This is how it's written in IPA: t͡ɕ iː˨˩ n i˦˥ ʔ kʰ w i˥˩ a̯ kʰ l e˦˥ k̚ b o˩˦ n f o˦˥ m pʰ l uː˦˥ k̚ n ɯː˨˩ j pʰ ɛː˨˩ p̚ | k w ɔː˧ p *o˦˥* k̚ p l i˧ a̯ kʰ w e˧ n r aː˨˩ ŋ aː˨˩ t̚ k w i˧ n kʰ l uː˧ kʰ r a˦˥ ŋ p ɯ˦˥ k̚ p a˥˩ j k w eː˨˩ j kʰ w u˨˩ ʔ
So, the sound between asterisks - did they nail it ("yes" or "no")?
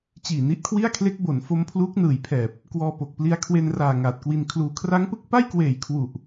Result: no